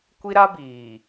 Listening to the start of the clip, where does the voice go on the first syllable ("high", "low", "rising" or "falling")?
high